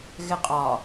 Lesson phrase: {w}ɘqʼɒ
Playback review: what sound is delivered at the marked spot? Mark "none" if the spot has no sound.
ɣ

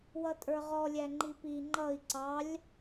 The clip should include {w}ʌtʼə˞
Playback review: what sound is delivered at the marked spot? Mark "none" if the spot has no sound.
w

